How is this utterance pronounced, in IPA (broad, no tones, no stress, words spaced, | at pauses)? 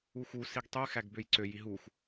uxu siɡtˤy xæɡbøjǀø jiɦux